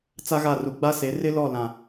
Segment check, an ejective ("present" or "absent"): absent